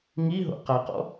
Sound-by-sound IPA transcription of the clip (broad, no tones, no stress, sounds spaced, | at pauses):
ŋ i ɦ o̰ q a q ɔ̰